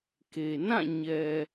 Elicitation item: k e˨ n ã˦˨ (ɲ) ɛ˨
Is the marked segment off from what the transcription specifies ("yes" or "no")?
no